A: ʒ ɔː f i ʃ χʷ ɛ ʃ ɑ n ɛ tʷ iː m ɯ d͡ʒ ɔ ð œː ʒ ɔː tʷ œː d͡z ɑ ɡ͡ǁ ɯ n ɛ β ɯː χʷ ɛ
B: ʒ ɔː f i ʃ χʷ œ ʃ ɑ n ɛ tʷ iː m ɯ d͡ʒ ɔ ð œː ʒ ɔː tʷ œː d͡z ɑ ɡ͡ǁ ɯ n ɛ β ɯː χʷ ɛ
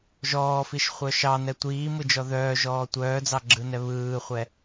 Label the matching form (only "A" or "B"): B